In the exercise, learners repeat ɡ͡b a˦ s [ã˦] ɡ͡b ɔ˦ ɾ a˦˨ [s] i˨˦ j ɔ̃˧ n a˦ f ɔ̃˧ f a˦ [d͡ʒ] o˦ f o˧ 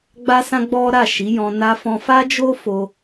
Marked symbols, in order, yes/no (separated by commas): yes, no, yes